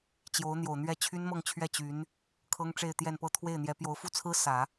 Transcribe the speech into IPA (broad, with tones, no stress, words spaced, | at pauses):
t͡ɕjo˧˥ʊ̯n̪jo˨˩ʊ̯n̪ɥɛ˥˩ t͡ɕʰy˥nmɤ˥˧ŋt͡ɕʰɥɛ˥˩ t͡ɕy˧˥n | kʰɤ˥ŋʈ͡ʂe˥˧ɪ̯t̪jɛ˥˧npɤ˥˧ t̪ʰwe˥˩ɪ̯n̪jɛ˧˥ pjo˧˥ʊ̯fu˥˩t͡sʰɹ̩˥ sä˨˩˦